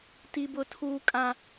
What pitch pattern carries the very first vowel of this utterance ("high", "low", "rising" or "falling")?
high